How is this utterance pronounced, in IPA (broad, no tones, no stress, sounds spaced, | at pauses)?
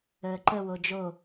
əː ǃ ə w o d͡ʒ o